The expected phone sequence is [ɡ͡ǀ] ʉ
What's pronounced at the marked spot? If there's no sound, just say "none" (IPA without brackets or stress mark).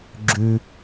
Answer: ɡ͡ǁ